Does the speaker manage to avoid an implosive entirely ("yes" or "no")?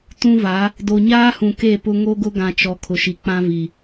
yes